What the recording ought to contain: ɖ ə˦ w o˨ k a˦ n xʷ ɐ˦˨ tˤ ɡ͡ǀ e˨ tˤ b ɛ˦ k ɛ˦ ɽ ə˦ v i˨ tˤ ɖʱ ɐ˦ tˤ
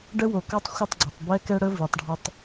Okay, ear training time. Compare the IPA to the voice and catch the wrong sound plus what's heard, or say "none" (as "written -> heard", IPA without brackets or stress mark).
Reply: n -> tˤ